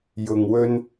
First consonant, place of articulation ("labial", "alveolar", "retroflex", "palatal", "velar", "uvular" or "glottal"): palatal